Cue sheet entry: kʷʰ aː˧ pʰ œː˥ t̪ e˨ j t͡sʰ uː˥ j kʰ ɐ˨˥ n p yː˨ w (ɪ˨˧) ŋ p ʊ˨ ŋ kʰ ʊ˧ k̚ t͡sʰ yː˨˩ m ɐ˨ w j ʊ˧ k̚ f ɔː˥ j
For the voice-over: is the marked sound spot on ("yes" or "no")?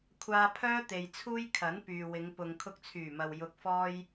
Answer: yes